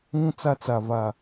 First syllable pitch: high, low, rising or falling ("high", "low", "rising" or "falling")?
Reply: high